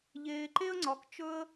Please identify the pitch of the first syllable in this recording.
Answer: low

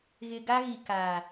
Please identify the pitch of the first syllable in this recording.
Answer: low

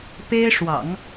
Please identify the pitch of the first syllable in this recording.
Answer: high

